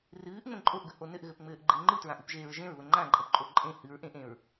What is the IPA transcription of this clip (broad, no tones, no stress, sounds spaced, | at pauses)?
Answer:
r ɨː ʔ ŋ͡m ə̃ ǃʼ o ʔ ɡ ə h o n ɘ ʔ ɣ ɘ p ŋ͡m ɘː ʔ ɡ͡ǃ ɘ ŋ͡ǃ ɨ t ɹ ã ʔ ʉ p ʒ eː ɹ ʒ ẽ ɹ β ə ŋ͡ǃ ã ǃʼ ə̃ p ǃʼ o ǃʼ ẽ h ɨ ɹ ʔ ẽ ʔ ẽ ɹ